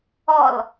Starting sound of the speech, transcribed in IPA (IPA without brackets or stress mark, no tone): ɔ